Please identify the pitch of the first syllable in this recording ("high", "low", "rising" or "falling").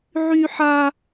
high